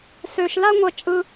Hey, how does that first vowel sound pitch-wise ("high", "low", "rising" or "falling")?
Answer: low